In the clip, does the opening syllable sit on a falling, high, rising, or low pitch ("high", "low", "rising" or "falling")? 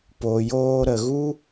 low